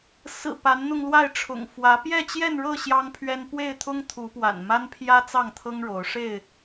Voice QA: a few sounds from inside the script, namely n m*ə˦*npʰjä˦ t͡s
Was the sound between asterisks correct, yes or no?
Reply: no